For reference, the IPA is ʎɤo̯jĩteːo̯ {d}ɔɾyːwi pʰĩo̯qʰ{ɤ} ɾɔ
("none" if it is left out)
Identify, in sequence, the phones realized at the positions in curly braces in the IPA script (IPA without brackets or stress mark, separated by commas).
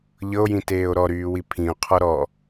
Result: ɾ, ɔ